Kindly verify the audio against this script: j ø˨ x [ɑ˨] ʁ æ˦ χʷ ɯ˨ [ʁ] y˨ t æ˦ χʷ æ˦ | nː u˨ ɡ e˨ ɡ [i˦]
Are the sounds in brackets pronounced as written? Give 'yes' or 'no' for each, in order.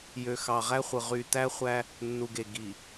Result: yes, yes, no

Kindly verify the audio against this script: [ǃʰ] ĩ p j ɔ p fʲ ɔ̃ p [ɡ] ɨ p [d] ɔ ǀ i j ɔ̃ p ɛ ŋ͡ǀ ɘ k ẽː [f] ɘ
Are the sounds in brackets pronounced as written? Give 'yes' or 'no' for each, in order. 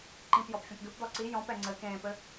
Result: no, yes, yes, no

